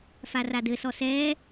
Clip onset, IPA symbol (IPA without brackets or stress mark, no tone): f